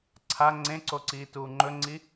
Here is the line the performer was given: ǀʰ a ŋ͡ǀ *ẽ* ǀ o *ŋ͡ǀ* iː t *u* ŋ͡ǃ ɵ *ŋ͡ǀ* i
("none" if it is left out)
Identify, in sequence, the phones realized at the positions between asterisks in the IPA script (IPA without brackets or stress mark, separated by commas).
ẽ, ǀ, uː, ŋ͡ǀ